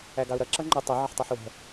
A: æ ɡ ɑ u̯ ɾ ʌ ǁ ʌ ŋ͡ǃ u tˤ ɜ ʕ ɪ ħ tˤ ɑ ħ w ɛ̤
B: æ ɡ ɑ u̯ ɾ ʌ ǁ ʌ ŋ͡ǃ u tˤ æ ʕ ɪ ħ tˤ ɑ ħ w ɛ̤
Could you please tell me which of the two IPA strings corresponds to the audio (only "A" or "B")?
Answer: A